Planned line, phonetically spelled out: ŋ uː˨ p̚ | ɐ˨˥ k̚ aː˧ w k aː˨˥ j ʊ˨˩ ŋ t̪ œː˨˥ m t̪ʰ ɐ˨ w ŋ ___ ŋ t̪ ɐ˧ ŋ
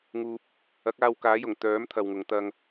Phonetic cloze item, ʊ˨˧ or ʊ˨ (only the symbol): ʊ˨˧